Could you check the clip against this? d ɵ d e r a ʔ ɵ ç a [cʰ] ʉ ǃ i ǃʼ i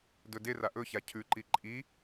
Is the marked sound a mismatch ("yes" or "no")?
no